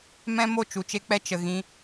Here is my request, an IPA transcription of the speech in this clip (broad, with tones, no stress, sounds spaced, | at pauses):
m ɛ̃˦ m o˦˨ t͡ʃ u˨ t͡ʃ e˦ k͡p ɛ˦ t͡ʃ ə˨ ɣ ĩ˧